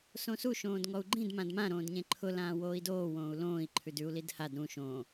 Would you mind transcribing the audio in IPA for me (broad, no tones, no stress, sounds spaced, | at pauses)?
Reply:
s õ s u ʃ õː d ŋ ɔ u̯ ɡ͡ǃ ĩ d m ã d m ã ɾ õː d ɲ ẽ ǃʰ ʊ l ãː w oː i̯ d oː w õː u̯ l õː i̯ ǃʰ ʉ d ʉ u̯ l i d h a d ɾ ũ ʃ õː